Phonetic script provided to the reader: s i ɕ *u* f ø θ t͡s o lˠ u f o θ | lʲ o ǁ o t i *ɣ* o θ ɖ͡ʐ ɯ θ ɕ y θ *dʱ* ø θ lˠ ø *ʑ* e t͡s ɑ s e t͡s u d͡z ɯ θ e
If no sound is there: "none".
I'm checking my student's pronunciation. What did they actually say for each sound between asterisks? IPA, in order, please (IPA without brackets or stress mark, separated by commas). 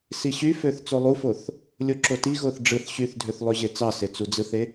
y, ɣ, dʱ, ʑ